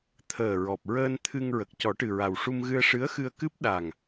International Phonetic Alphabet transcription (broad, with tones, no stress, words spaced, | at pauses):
t̪ʰəː˨˩ ɹɔ˨˩p̚ɹəː˧nt̪ʰɨ˧ŋ ɹə˨˩k̚cɔ˨˩˦ʈɨ˨˩ɹa˨˩w ʂu˧mɣɨ˧ə̯ ʂɨ˧˥ə̯xɨ˧ə̯kɨ˦˥p̚ ɗa˨˩ŋ